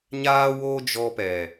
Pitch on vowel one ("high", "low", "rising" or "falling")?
high